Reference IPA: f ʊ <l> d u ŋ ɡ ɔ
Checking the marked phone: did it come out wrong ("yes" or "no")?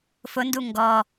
yes